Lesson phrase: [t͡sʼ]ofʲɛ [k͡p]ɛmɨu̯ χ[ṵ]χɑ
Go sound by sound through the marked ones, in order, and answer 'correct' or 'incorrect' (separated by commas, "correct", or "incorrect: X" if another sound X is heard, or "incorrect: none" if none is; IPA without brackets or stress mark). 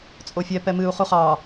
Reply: correct, incorrect: p, incorrect: u